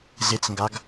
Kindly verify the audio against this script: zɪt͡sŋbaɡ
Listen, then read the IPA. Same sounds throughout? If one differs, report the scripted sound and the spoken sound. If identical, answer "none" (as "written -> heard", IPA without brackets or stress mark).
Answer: b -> ɡ